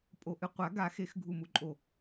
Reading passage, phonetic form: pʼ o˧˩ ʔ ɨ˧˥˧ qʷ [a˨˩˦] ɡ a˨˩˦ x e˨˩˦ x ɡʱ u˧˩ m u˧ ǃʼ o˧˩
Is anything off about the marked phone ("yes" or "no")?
no